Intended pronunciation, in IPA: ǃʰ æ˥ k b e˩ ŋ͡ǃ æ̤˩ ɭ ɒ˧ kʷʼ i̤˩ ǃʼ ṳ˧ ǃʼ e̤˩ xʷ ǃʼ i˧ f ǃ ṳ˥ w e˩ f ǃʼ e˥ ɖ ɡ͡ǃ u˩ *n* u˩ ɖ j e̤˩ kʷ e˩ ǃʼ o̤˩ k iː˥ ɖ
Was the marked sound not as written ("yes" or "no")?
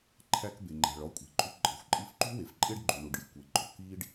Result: yes